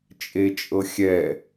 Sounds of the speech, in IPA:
t͡ʃʼ e t͡ʃʼ ɤ xʲ ɛ

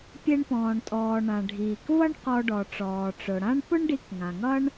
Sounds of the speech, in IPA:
pʲ e˧ ɳ p ɔ̃ː˩ ɳ tʼ ɔː˩ ɳ ã˩ ɖʱ iː˩ k v ʌ˥ ɳ q ɔ˧ ɖ ɔ˩ ʈ͡ʂ ɔː˩ ʈ͡ʂ ʊ˩ ɽ ã˥ ɳ p ʊ˥ ɳ ɖ i˧ k ŋ ã˩ ŋ ʌ˥ ɳ

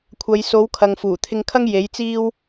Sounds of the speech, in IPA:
kʷʰ ɐ˨˧ j s o˨˥ w kʰ ɐ˨ ŋ f uː˨˩ t̪ʰ ɪ˧ ŋ kʰ ɐ˥ ŋ j e˨˥ j t͡s iː˥ w

